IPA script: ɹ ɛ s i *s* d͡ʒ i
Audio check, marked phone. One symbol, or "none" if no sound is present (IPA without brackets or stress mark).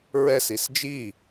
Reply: s